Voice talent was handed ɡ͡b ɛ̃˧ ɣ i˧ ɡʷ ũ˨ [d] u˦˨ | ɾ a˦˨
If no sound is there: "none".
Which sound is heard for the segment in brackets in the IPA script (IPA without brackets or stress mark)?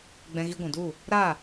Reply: d